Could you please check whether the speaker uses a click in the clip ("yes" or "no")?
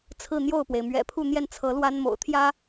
no